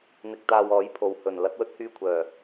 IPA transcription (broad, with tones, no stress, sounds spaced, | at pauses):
n̪ ɪ˧ k̚ t̪ aː˧ w ɔː˨˥ j pʰ o˨ w h ɵ˨˩ n l ɐ˨˥ t̚ w ɵ˥ t̚ h yː˧ kʷʰ œː˨˩